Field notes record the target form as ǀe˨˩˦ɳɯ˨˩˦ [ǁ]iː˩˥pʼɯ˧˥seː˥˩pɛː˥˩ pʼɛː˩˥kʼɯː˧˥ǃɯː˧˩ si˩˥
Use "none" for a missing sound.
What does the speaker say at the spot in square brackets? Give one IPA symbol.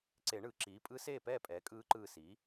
ǁ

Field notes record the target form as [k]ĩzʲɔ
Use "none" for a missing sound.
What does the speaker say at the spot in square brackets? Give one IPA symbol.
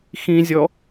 x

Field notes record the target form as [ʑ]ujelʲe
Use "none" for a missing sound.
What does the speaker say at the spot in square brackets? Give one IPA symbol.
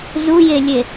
z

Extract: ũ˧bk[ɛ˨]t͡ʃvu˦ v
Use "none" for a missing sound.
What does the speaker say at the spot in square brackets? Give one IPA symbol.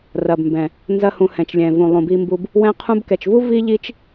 ɛ˨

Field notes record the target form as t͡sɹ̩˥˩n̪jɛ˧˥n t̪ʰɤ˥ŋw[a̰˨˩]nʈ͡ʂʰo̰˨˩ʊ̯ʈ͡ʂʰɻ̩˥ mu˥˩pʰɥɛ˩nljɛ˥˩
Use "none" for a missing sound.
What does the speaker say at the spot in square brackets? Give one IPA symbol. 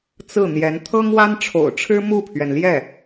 a˥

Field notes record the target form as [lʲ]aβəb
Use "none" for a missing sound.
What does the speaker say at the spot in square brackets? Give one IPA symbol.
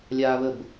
lʲ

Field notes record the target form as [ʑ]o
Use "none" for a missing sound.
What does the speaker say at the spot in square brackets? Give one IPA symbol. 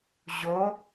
ʑ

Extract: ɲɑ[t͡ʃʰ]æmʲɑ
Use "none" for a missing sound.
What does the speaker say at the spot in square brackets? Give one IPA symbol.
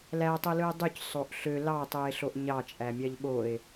t͡ʃʼ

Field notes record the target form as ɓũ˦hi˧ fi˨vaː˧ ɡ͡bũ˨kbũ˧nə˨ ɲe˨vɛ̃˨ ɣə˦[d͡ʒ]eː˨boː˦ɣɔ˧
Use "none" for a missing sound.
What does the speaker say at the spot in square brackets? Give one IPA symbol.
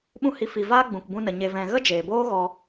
d͡ʒ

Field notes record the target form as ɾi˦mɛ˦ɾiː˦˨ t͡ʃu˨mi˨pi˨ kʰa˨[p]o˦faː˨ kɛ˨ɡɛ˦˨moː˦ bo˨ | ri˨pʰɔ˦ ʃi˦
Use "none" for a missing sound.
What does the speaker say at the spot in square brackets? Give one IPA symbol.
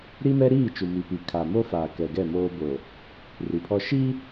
m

